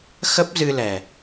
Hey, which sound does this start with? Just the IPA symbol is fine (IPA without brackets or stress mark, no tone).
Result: x